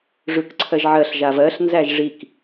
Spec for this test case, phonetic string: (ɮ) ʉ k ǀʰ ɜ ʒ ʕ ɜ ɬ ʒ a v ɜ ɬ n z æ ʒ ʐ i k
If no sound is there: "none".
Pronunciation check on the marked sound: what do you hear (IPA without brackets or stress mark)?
ʐ